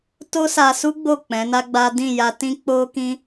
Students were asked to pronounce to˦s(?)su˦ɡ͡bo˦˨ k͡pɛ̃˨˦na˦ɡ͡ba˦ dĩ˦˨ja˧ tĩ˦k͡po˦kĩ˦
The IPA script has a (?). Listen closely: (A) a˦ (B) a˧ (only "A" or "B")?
B